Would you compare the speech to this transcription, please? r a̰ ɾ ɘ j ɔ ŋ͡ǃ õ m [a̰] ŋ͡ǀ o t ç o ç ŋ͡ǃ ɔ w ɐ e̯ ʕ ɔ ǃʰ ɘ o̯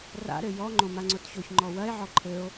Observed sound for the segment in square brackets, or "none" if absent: a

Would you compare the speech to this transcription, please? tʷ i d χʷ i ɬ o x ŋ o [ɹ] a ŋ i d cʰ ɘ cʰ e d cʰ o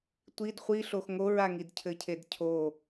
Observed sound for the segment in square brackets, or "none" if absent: ɹ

